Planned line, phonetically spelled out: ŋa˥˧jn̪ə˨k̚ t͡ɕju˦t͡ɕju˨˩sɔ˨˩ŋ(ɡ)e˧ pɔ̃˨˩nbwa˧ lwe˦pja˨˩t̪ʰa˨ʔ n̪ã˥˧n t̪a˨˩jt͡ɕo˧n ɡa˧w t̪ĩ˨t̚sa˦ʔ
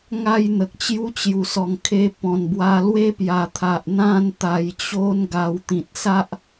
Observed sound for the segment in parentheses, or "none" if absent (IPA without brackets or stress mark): kʰ